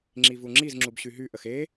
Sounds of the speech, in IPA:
ŋ͡ǁ i v u ŋ͡ǁ i z ŋ͡ǁ u b ɕ y ɦ y ʔ ə x e

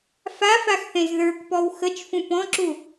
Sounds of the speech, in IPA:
f a f a x θ ẽ z ð ə˞ k p ɔ w x ə t͡ʃ f ũ p ɔ̃ ǁ u

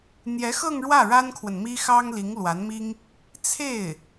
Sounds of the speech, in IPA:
n̪ j ɛ˧˥ x ɤ˥˧ ŋ ɻ w ä˥˩ ɻ a˥ n kʰ w ə˨ n m i˥ x ɑ˥ ŋ l i˧˥ ŋ l w a˧˥ n m i˥ ŋ | t͡sʰ e˥˩ ɪ̯

